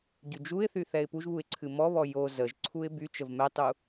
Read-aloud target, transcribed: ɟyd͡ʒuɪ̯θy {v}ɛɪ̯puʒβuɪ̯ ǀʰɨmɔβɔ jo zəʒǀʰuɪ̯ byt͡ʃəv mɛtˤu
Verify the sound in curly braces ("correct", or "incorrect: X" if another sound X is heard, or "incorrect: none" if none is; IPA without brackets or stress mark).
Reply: incorrect: θ